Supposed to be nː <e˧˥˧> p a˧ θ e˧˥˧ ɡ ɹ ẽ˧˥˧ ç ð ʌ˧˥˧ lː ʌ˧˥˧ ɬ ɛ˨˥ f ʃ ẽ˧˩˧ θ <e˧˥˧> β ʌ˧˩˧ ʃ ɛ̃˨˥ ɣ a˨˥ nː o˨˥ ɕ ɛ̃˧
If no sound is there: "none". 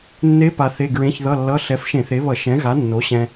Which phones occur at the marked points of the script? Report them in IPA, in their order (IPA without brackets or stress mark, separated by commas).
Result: e˦˥, e˨˥